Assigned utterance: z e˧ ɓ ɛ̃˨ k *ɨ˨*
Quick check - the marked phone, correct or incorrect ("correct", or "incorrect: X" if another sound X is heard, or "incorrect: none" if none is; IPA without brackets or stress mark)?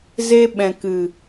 correct